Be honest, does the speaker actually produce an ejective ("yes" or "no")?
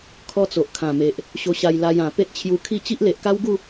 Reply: no